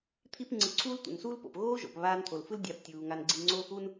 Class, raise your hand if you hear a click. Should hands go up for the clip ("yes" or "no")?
yes